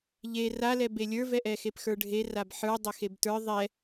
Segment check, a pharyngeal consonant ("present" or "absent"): present